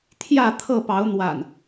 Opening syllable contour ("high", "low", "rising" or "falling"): falling